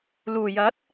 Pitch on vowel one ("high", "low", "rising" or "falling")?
low